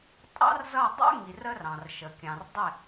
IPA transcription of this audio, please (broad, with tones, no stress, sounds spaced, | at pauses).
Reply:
tʼ ɑ̰˦ r z ʌ˦˨ dˤ ə̰˦ ŋ i˨ r ə˧ r ɑ̃˨ r ʃ ə˨ kʲ ɑ̃˨ r dˤ ɪ˦˨